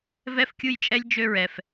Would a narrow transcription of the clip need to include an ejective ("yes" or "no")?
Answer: yes